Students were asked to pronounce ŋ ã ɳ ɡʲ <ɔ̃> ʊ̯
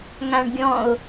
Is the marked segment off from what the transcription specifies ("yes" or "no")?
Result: no